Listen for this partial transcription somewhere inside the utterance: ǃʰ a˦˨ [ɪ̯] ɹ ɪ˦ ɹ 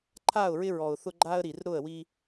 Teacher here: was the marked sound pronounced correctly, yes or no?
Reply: no